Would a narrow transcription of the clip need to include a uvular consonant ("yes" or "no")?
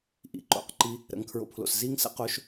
yes